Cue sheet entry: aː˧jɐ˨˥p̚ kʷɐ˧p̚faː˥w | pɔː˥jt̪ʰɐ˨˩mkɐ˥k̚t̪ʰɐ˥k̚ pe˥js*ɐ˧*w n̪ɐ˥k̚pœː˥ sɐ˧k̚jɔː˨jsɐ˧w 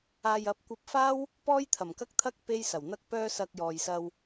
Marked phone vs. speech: incorrect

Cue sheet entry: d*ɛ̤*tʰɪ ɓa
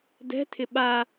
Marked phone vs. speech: correct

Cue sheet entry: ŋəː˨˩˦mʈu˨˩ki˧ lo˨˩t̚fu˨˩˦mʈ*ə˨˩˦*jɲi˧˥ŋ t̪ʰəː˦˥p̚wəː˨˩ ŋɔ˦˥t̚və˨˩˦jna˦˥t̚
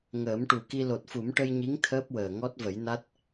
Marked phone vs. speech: incorrect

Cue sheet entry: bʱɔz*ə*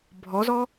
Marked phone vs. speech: incorrect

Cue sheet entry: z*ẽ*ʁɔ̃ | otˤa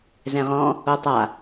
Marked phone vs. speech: incorrect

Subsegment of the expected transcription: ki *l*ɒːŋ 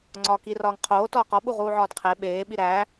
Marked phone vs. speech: incorrect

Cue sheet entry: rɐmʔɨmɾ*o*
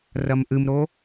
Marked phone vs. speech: correct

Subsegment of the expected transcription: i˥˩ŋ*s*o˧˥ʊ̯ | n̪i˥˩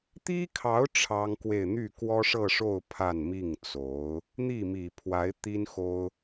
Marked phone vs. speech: incorrect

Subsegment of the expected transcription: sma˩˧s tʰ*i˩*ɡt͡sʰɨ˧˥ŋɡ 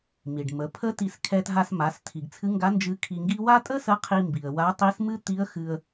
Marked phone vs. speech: correct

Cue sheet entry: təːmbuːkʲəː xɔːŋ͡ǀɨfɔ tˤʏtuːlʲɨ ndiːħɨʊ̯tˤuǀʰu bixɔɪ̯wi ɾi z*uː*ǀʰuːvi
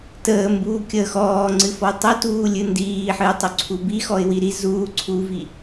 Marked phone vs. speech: correct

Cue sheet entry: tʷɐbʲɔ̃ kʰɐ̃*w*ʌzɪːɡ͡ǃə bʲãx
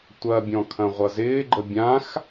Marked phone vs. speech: incorrect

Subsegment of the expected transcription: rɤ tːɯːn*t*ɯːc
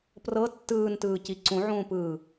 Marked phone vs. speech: correct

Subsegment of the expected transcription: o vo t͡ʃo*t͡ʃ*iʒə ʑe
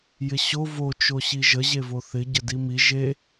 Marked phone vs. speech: incorrect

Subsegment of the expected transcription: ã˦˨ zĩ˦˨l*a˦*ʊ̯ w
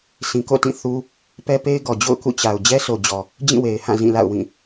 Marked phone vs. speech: incorrect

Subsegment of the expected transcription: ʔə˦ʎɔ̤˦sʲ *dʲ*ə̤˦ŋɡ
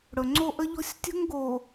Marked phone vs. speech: incorrect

